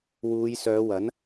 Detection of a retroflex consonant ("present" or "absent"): absent